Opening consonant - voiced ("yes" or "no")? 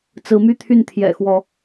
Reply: no